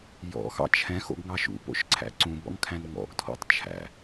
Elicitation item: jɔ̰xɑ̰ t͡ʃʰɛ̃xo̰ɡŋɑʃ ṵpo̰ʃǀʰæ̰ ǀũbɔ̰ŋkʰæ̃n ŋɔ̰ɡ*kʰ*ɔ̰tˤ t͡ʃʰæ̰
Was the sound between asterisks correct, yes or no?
no